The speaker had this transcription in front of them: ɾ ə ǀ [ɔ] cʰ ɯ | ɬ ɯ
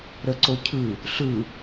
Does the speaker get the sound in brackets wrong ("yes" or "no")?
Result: yes